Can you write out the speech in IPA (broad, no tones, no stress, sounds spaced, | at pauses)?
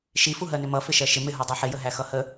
ʃ i f u ɦ ɜ n ɪ m ʌ f ɪ ʃ ɜ ʃ ɪ m ɪ ɦ u dˤ ɜ ħ ɪ j ə ɦ æ x ʌ h ə